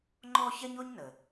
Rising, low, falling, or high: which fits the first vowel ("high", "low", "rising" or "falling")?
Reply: high